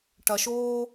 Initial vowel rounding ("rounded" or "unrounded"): unrounded